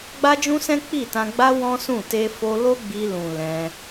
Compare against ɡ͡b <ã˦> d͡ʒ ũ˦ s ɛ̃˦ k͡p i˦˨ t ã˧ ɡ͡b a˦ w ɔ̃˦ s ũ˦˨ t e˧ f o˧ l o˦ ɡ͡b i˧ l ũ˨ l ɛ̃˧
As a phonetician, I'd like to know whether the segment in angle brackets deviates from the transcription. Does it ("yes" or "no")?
yes